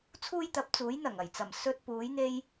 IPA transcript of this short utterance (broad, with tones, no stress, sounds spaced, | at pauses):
t͡sʰ uː˥ j t̪ ɐ˨˥ p̚ t͡s uː˨˥ j n̪ ɐ˨˩ ŋ ɐ˨˩ j t͡s ɐ˨˩ m s ɵ˧ t̚ p uː˨˥ j n̪ e˥ j